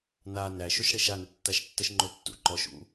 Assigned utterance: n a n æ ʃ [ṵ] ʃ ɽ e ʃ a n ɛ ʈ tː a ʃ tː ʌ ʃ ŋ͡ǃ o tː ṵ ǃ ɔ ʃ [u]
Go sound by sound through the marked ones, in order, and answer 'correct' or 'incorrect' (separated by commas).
incorrect, incorrect